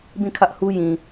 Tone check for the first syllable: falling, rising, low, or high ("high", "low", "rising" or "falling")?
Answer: falling